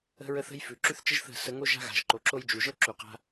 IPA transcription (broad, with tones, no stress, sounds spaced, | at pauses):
ə̤˦ ɹ ə˦ θ ə̤˦ j f ʉ˨ ǁ ʉ˦ θ t͡ʃ ə˦ ʒ θ ə̤˦˨ s ə˧ ŋ o˦ ʒ a̤˦ ɣ a̤˨ ʒ ǃ o˨ ǁ o˦ j d͡ʒ u˨ ʒ ɤ˦ ǁ u˨ q a̤˦